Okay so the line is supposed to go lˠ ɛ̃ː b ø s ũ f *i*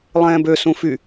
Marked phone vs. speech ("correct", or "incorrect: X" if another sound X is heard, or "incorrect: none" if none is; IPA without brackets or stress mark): incorrect: y